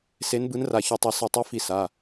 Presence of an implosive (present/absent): absent